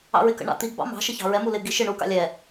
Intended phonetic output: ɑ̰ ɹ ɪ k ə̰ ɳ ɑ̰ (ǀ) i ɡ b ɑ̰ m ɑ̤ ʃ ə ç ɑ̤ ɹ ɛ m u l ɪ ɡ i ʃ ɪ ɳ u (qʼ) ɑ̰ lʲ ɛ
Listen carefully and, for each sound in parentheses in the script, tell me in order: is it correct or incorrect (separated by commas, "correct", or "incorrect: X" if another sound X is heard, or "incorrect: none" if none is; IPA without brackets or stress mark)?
incorrect: t̪, incorrect: k